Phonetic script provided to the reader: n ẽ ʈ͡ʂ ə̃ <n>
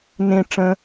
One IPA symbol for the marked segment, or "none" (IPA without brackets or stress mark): none